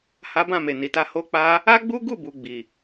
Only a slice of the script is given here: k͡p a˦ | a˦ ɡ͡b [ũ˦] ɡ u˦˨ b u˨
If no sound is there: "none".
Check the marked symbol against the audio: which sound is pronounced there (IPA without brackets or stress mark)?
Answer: u˦